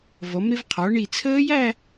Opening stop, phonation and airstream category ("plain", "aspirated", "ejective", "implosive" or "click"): aspirated